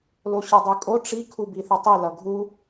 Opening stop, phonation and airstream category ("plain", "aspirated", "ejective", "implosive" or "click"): plain